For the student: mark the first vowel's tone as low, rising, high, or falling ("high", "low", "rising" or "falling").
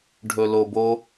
low